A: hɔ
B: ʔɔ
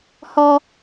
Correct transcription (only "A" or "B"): A